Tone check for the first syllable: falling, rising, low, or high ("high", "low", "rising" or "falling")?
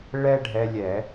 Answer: high